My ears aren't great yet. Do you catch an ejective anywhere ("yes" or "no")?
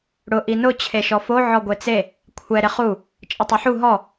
yes